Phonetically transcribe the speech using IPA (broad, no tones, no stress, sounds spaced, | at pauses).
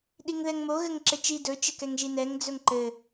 ɗ i ŋ ð ɛ ŋ m o ɣ ɘ ŋ ǁ ɘ t͡ʃ i d ɵ t͡ʃ ɘ k ɛ ŋ ʒ i n ɛ ŋ d͡z ɵ ŋ ǃ ɘ